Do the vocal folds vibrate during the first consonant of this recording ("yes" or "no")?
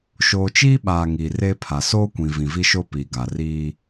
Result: no